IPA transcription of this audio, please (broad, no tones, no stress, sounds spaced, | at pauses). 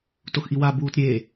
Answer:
t o x ʔ i w a b uː t ɾʲ e